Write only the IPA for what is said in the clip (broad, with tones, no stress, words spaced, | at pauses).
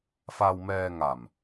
fa˧wmɛː˧ŋa˨˩m